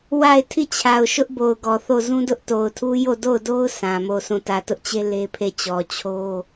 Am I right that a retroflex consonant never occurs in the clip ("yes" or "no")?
yes